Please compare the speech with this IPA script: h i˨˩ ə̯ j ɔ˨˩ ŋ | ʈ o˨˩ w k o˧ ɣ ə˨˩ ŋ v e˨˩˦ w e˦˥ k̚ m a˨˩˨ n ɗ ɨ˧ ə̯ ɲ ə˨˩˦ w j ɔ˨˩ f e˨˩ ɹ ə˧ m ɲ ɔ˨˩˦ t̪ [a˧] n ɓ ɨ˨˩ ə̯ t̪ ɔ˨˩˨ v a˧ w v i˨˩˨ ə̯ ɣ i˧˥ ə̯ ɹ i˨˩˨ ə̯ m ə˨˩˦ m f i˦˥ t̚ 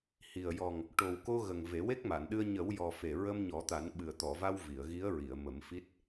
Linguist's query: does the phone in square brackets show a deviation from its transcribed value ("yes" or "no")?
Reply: yes